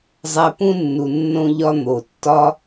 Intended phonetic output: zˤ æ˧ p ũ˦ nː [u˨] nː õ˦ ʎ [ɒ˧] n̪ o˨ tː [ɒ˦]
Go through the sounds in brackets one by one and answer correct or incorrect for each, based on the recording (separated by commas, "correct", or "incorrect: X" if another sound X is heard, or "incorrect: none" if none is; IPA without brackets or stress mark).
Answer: correct, incorrect: ɒ˦, correct